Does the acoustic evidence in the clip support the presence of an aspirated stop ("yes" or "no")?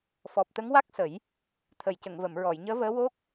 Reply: yes